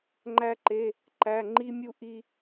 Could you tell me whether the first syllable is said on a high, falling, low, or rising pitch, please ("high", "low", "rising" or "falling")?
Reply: high